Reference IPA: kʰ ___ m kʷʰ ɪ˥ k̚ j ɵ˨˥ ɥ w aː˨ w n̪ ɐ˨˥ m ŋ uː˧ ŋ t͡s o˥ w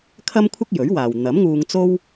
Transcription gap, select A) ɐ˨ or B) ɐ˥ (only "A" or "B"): B